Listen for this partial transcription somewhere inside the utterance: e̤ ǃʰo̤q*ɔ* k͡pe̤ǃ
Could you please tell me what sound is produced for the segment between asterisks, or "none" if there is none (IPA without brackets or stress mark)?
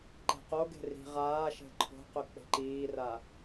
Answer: ɵ